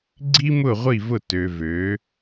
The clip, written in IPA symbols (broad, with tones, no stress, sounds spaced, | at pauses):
ɡ͡ǀ i˦ m ʊ˦˨ ʁʷ i˦˨ v ʊ˦˨ t ø˨ v ø˨˦